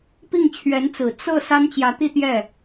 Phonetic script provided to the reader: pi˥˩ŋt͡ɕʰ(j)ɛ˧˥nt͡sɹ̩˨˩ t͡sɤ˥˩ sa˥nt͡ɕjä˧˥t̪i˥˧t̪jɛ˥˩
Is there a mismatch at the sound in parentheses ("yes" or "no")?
yes